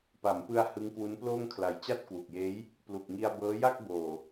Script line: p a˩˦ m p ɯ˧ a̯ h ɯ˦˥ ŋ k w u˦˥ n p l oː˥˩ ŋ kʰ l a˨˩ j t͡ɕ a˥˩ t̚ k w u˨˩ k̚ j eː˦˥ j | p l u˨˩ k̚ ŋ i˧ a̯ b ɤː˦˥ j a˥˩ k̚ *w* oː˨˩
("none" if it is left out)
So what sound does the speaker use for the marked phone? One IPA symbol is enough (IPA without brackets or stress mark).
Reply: b